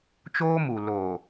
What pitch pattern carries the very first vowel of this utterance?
high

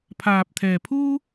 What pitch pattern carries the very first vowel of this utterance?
low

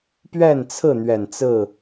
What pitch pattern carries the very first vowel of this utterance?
falling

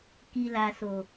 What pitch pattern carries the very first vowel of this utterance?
low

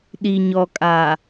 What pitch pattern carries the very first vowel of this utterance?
low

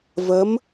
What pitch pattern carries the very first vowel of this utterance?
rising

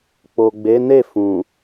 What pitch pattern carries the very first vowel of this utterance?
low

